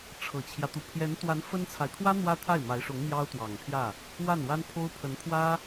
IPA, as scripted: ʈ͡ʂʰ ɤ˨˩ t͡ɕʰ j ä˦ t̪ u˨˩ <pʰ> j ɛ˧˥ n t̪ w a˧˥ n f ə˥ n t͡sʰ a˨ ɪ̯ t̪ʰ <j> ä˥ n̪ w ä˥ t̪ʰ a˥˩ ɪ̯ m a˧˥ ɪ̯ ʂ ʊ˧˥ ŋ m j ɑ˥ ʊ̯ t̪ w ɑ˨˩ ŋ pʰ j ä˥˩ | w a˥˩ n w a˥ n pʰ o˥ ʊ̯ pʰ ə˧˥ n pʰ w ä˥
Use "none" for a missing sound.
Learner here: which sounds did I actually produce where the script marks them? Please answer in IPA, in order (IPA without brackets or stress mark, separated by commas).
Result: pʰ, w